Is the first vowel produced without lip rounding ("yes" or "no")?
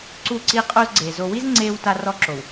no